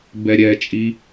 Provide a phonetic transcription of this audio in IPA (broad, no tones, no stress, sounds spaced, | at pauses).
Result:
b ɛ ɾʲ ɛ t͡ʃʼ i